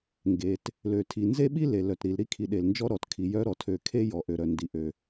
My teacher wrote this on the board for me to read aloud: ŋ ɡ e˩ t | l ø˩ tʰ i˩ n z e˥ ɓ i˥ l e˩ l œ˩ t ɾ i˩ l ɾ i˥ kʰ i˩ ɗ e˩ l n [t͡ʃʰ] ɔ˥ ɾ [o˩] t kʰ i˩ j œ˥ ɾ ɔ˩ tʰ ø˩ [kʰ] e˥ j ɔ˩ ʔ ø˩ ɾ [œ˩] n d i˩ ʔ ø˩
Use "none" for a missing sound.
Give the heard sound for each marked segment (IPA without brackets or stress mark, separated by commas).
d͡ʒ, ɔ˩, kʰ, œ˩